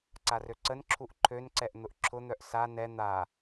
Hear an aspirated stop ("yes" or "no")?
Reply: yes